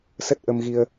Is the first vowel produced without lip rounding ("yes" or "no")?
yes